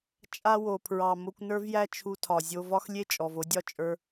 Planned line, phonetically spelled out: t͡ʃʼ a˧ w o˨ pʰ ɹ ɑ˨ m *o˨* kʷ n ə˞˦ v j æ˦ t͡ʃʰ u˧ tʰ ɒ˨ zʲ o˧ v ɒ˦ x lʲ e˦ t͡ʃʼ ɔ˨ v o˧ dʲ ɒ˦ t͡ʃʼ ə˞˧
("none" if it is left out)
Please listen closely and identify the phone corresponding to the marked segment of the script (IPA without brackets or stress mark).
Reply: o˧